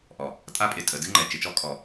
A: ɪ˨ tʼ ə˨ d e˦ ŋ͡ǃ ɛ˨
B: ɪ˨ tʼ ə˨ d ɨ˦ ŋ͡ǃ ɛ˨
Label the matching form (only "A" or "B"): B